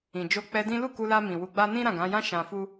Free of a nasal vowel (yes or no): no